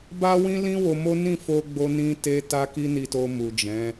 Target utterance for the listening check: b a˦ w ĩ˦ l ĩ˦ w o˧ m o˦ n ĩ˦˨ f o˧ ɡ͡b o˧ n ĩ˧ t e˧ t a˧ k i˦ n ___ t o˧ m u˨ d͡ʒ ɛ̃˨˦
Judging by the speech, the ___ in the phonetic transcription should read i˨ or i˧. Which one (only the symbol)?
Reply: i˧